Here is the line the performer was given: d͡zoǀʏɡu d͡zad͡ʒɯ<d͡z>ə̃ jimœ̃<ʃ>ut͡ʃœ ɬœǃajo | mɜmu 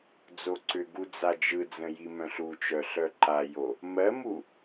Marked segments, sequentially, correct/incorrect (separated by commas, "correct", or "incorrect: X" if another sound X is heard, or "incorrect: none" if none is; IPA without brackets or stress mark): correct, incorrect: ɬ